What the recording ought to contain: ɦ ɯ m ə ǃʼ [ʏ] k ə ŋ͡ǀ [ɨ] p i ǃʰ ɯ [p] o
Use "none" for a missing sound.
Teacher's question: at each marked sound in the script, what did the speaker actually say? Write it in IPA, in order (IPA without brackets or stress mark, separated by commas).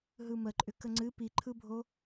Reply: ʏ, ɨ, bʱ